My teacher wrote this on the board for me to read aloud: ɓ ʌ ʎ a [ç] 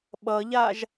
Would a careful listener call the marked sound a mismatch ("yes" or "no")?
yes